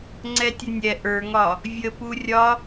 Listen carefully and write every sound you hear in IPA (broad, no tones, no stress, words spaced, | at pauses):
ŋ͡ǀɛtʲənʲɛ ʔə˞ŋɒ | vʲə purʲɒ